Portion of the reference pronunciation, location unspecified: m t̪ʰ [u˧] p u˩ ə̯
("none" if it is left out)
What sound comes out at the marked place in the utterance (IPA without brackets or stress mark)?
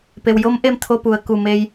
o˧